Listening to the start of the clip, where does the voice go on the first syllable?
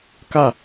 falling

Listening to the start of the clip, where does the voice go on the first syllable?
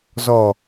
low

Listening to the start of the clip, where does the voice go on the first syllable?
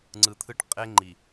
low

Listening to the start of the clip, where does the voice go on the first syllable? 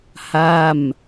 falling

